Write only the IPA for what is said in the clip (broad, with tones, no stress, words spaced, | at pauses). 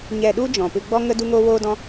ɲɛ˧ɗu˦ d͡ʒɔ̃˨pɨ˧ɡ͡bɔ˦ŋə˦ du˦ŋoː˦woː˦dɔ̃˦